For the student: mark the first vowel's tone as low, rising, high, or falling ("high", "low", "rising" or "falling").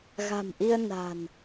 low